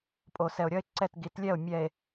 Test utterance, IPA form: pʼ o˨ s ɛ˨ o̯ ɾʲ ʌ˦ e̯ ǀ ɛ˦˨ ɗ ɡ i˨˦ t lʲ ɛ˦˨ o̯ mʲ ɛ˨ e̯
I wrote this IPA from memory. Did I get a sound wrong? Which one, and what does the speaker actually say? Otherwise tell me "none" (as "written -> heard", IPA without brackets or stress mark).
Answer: ɗ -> t